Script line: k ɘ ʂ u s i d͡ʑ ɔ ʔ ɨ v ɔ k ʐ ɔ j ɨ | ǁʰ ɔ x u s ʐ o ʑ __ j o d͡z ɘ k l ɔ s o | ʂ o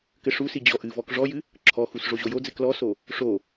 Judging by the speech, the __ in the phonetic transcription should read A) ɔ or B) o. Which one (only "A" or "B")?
B